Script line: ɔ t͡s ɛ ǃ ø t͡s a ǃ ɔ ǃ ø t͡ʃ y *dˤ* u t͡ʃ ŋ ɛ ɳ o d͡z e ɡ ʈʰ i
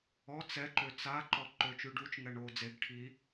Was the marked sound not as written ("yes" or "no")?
yes